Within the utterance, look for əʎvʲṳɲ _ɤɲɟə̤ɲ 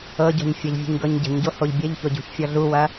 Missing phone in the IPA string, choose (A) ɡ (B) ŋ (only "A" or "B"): A